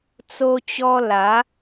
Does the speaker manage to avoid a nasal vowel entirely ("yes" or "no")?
yes